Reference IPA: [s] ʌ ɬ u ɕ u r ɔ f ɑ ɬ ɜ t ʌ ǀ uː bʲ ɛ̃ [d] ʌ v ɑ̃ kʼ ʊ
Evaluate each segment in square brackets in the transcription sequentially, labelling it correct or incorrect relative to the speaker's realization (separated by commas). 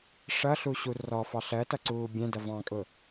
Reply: incorrect, correct